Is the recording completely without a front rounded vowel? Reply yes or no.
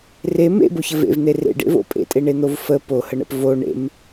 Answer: yes